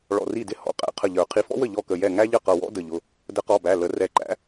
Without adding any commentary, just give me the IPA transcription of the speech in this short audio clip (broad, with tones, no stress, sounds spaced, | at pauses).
ɭ ɔ̰˧˩ r i˥˩ d ɪ˥˩ h ɔ̰˩˧˩ qʼ æ̰˨˥ qʰ ə˧˩ ʎ ə˞˨˩˦ qʰ i˨˥ f ɔ̰˥ w ə˥˩ ʎ ɔ˥˩ k ə˧˩ j ɛ˥˩ ŋ æ˥ ʎ ə˥˩ q ʌ˧˩ w ɔ̰˥ d ə˧˩ ʎ ʊ˩˧˩ | d ə˨˥ q ɔ˩˧˩ b æ˩˧˩ l ə˨˩˦ r ɛ˨˩˦ ǃ æ̰˨˥